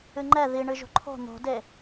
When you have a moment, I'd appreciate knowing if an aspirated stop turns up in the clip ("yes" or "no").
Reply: yes